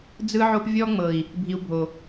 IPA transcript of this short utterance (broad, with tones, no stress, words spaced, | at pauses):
d͡zɯ˦ʕo˦p vʲɔ˦ŋ͡mɤ˨i̯ | bʱi˧u̯bʱo˨